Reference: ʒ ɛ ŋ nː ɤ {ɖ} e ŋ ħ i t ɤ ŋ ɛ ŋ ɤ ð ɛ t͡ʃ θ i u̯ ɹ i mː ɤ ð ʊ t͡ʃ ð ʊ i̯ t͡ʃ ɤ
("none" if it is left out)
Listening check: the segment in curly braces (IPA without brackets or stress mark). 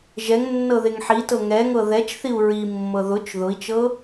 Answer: ð